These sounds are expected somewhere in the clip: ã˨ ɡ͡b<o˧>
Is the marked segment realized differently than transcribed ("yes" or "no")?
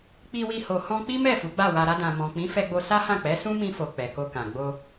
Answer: no